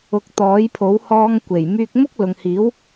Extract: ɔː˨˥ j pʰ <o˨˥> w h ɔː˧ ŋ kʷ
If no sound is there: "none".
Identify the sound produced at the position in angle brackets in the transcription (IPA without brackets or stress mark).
o˨˥